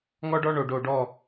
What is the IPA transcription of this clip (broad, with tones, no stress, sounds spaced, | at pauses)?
ŋ ɔ˦ ɖ ɔ˦ ɳ o˨ ɖ o˨ ɖ ɔ˦˨